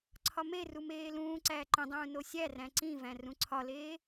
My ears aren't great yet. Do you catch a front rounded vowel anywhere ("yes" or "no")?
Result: no